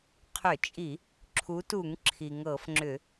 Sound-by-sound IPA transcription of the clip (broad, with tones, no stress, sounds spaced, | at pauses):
qʰ ʏ˧˩˧ t͡ʃʼ i˧˩˧ | ǁʰ u˨˦ t u˧˩˧ ŋ ǁʰ i˩ ŋ ɤ˧˩˧ f ŋ͡ǁ ʏ˧˩˧